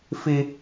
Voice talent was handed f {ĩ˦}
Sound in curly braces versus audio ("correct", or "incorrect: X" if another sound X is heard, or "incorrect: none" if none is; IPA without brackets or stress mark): incorrect: i˦